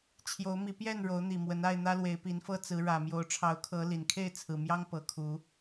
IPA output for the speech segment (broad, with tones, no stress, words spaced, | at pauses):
t͡ɕʰjo˨˦ʊ̯mi˨˦pjɛ˥˨n ɻo˨˦ʊ̯n̪i˨˩ mwə˨˦na˥˨ɪ̯ n̪ä˦lwe˨˦ɪ̯pi˨˦nfɤ˦ t͡sɹ̩˨˦ɻä˨˩mjo˨˦ʊ̯ ʈ͡ʂʰɑ˨˦ʊ̯kʰɤ˨˦ li˨˩n kʰe˥˨ɪ̯t͡sʰɹ̩˨˩mjɑ˦ŋ pɤ˨˩kʰu˨˦